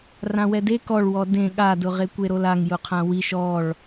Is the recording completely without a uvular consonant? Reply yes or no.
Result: no